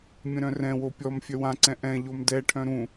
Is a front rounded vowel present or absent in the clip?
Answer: present